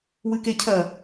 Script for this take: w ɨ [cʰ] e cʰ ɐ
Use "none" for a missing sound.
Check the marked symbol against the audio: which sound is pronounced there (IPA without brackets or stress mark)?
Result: k